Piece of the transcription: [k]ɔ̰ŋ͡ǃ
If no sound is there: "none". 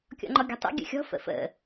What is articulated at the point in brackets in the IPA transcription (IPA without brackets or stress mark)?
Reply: kʲ